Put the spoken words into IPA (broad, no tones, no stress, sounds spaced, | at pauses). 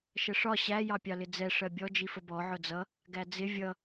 ʃ ə ʂ ɒ ɕ æ j ɑ pʲ ɑ l ɪ d͡z ɛ ʂ ɜ bʲ ɔ d͡ʒ i f ə b ɔ ʕ ʊ d͡z ʌ | ɡ æ d͡z ɪ vʲ ʌ